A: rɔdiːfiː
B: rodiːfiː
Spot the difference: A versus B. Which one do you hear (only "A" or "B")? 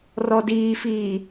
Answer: A